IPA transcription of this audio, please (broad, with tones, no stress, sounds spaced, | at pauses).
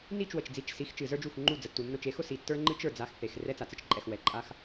n i˦˨ t͡ʃ w ə˨ t͡ʃ d͡z i˨ t͡ʃ s i˨˦ x t͡ʃ ɨ˨ z ə˞˦ d͡ʒ u˦˨ x ŋ͡ǃ u˦˨ d͡z ə˨ tː u˨ nː ʊ˦˨ t͡ʃ e˦ x ʊ˦ s i˨ tː ə˞˦ ŋ͡ǃ ɨ˦ t͡ʃ ə˞˨ d͡z a˦ x θ e˨ x r ɛ˦ t͡s a˨ t͡s ɨ˦ t͡ʃ ǃʼ ɛ˨ x w ɛ˨ ǃʼ a˦ x